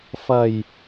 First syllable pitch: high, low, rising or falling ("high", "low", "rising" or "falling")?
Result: low